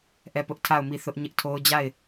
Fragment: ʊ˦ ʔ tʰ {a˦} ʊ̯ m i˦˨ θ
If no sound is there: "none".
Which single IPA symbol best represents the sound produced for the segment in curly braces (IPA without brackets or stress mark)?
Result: a˦˨